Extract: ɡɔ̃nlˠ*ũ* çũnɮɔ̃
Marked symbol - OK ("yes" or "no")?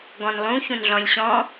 yes